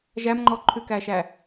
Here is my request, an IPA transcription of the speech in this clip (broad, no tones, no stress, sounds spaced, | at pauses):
ʒ æ m ŋ͡ǃ ɔ ǃʰ ʉ k æ ʃ æ